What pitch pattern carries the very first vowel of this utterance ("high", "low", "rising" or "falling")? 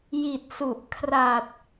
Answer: low